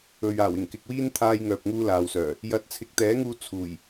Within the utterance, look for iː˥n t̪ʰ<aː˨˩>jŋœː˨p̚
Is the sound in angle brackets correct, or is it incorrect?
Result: incorrect